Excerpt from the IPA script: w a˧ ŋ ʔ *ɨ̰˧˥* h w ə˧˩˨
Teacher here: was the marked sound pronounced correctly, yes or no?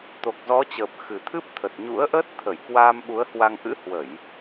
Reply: yes